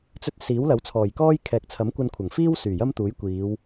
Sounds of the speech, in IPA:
t͡s ɵ˧ t̚ s iː˨˥ w l ɐ˨˥ w t͡sʰ ɔː˨˩ j k ɔː˥ j kʰ ɛː˨ k̚ t͡sʰ ɐ˨˥ m kʷ ɐ˧ n kʷʰ ɐ˨˩ ŋ f iː˥ w s yː˨˩ j ɐ˥ m t̪ uː˨˥ j kʷ iː˨˧ w

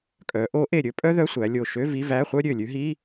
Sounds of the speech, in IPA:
kʼ œ˩˧ ʔ o˧˥ ʔ e˧˩ ɾʲ ɵ˥ pʼ œ˥ ð œ˧˥˧ sʷ æ˩˧ lʲ o˧˩ ʃ ø˧˥˧ v i˧˥˧ v æ˧˥˧ χʷ œ˥ ɾʲ ø˧˩ lʲ ʉ˧˥ ɦ i˧˥˧

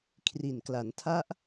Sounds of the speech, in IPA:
kʰ r i˨˩ n k l a˩˦ n tʰ a˦˥ ʔ

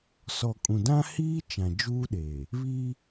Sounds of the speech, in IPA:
s ɔ˨ kʼ ũ˨ d ã˦ h iː˦ t͡ʃ ã˨ d͡ʒ uː˦ ɗ eː˨ | β iː˦

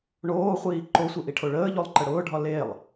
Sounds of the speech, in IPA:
ɳ oː χʷ iː ǃ o sʷ i ʔ i ʈʰ o ɭ əː ʎ o lˠ ǃ ə ɽ ʊː ɖʱ ɒ l e lˠ

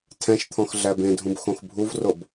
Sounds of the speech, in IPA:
tʰ ɛ̃ ʃ t̪ʰ ɔ̃ x ɮ æ b ẽ dʱ ũ b x õ x bʱ u v r o b

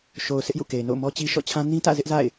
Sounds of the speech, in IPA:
ʃ o˨ ʊ̯ sʰ ɪ˦ ʔ j ṵ˦˨ k e˨ ɪ̯ n o̰˦˨ ʊ̯ m ɔ˦ t͡ɕ i˦ ʃ ɔ̰˦˨ t͡ɕʰ ã˦ n ĩ˦ t ä̰˦˨ z ɪ˦ ʔ z a̰˦˨ ɪ̯

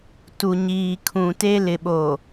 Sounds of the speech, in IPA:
t u˨ ɲ iː˨ kʰ ũ˨ t e˦ l ɪ˨ ɓ o˨

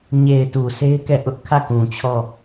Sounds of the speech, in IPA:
ɲ e˨ ɪ̯ t u˨ s e˦ ɪ̯ k ɛ˦˨ ʔ ʊ˦ ʔ kʰ ä˦˨ k ũ˨ t͡ɕʰ ɔ˦˨

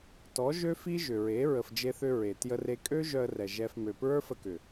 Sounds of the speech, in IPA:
t ɔ˨˦ ʒ ø˦ f i˦ ʒ ʏ˨ ɹ e˨˦ ɹ ə˨ f d͡ʒ e˧ θ ʏ˧ ɹ e˨ t j ə˦ r e˦ kʼ ø˦ ʒ œ˧ ə̯ r ɛ˨ ʒ ɛ˧ f m ø˨ p ɹ ə˞˦ f ə˧ k ʏ˨

